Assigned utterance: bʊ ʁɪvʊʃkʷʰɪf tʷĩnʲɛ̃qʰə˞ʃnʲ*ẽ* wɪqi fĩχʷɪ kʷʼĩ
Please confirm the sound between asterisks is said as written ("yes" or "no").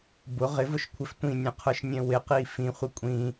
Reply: no